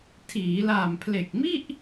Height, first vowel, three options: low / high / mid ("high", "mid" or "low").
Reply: high